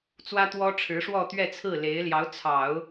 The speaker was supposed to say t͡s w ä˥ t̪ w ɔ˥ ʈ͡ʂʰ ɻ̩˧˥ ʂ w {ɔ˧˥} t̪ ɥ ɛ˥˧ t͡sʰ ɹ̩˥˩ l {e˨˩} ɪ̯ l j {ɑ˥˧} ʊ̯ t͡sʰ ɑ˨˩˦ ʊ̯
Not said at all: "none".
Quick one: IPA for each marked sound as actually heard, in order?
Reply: ɔ˥˧, e˧˥, ɑ˧˥

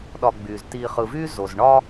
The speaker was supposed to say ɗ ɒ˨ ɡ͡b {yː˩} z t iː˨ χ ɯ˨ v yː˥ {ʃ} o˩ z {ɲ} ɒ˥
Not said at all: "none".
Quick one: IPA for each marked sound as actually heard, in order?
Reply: yː˩, z, ɳ

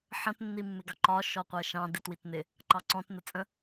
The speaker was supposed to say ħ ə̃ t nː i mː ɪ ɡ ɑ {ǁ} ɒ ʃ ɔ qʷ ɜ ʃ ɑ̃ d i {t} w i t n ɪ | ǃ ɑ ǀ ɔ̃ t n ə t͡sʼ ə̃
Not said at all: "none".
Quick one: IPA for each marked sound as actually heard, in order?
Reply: ǃ, t

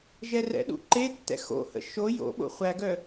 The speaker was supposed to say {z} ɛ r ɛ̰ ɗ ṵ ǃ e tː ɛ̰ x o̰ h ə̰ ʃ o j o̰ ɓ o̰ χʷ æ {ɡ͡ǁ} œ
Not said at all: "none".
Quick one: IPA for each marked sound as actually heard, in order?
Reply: ʒ, ɡ

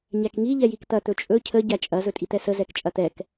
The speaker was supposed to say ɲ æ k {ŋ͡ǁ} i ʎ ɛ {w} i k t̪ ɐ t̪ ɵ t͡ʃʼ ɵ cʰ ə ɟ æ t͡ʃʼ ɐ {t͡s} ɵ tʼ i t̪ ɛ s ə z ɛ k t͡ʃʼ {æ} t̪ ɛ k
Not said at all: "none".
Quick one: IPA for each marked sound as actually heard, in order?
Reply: ŋ, j, z, ɐ

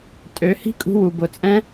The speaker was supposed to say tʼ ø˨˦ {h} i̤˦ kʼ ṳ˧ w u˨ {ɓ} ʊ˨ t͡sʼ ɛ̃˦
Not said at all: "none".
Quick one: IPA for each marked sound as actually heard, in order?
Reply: h, b

